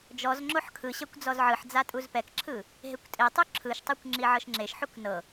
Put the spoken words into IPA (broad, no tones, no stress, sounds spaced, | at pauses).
d͡ʒ ɔ z ŋ͡ǁ o ħ kʰ ɯ ɕ ɛ kʷ d͡z ɔ z ʕ ɯ ħ d͡z a tʼ u z p ɛ k ǁʰ ɯ | ɦ e kʷ tʼ e tˤ u ǁʰ ɯ ʃ tˤ o kʷ ŋ͡ǁ i ʕ ɤ ʃ ŋ͡ǁ e ʃ ħ u k n ɤ